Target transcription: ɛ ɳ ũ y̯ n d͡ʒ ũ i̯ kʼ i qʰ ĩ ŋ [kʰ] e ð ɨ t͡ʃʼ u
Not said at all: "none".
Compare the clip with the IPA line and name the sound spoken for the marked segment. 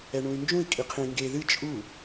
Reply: ɡ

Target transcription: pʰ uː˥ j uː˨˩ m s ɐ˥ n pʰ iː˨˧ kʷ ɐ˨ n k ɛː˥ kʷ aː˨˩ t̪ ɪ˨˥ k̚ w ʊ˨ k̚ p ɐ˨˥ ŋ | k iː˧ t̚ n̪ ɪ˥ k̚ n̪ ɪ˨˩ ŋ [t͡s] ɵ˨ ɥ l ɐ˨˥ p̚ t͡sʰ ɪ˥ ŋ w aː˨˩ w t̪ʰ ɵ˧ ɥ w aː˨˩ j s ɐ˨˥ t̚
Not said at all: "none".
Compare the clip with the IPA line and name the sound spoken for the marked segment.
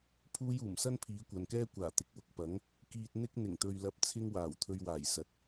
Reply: t̪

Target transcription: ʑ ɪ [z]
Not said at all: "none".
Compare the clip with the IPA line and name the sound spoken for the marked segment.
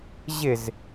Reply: z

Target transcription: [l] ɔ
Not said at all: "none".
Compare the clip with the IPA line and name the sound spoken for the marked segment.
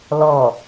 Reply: l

